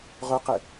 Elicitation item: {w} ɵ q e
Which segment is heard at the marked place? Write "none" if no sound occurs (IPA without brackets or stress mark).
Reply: ʁ